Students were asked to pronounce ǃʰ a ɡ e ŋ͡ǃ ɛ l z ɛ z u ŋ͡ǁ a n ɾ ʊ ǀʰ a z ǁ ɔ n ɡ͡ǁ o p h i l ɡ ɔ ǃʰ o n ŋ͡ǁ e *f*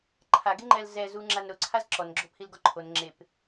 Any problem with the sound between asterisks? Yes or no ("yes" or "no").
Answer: yes